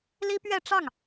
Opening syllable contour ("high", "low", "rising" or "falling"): high